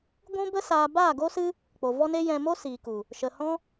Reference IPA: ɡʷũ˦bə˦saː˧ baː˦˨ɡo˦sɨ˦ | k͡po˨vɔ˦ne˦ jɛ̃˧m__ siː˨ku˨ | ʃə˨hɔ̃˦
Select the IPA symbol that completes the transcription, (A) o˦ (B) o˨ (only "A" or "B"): A